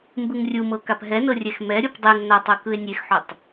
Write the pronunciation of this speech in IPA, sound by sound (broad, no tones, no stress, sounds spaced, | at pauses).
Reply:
m b ɯ ŋ rʲ u m ɤ k a p ɦ ɛ n ɤ rʲ ɛ x m ɛ ɾʲ o p dˤ e ŋ n a tˤ ɯ k ɯ e̯ nʲ e x ħ o tˤ